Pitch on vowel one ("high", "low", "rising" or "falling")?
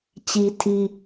high